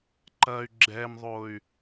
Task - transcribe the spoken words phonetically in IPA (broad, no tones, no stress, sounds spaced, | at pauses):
ǃ ɐ y̯ ɡ͡ǁ ɛ m ðˤ o y̯